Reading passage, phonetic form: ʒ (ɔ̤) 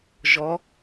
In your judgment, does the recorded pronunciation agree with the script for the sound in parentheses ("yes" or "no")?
no